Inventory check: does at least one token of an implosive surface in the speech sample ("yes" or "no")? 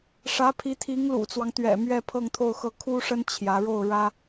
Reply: no